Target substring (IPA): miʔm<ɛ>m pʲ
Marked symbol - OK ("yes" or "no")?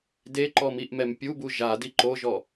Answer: yes